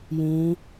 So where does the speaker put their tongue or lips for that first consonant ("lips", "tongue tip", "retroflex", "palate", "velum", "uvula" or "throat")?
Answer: palate